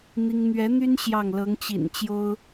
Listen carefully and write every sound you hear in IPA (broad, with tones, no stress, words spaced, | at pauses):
n̪i˥ŋ n̪ɥɛ˧˥ n̪y˥n ɕjɑ˥˩ŋ lɤ˧˥ŋt͡ɕḭ˨˩n t͡ɕjo˥ʊ̯